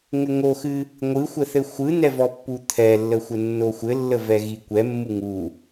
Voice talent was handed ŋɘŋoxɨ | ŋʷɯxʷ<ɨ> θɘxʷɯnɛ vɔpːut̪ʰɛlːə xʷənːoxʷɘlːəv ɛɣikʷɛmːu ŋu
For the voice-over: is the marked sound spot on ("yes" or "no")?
no